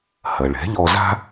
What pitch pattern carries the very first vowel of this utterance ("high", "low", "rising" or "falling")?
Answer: low